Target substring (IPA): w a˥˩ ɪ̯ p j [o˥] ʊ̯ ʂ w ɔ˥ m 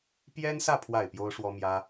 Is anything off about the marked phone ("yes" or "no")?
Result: no